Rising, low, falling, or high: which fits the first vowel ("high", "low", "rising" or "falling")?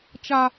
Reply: high